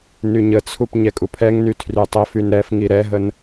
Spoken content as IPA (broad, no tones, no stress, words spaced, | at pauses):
nyɲət͡sʰup ɲɛkʼupʰɛŋny tʰrytˤəfyn ɾɛf ŋiɾɛɦən